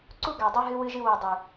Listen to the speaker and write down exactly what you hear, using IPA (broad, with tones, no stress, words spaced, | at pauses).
ǀu˦ ɡa˨ dˤʉ˦ɦɨ˦ wɨ˦ʒɨ˦wo˧ dˤʉ˨